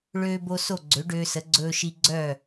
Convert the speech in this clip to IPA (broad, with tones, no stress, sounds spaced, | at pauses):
ɭ øː˧ b o˧ s o˥˩ ɡ͡ǀ ø˩˥ ɖ øː˧ s ə˩˥ ɡ͡ǀ ɵː˧ ʃ i˧ ɡ͡ǀ œ˥˩